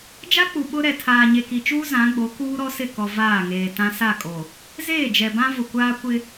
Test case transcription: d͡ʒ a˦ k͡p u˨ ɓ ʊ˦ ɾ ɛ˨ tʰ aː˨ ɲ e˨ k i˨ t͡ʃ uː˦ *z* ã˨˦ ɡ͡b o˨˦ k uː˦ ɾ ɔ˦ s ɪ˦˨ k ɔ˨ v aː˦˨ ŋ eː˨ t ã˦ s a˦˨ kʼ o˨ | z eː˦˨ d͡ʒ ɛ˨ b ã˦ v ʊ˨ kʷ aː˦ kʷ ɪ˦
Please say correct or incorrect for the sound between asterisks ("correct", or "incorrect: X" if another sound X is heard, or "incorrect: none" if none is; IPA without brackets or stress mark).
correct